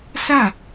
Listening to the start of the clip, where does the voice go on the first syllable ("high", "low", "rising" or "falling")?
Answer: falling